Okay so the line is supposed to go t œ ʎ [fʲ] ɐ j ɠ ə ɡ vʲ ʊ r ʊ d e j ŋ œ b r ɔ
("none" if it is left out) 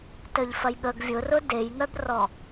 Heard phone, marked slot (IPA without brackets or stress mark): f